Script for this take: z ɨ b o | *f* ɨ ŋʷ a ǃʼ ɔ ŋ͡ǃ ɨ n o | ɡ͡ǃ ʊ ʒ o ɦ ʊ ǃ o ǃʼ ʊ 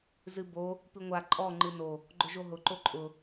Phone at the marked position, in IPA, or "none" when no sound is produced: p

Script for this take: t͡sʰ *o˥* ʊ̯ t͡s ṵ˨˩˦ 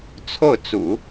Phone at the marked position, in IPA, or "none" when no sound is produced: o˥˩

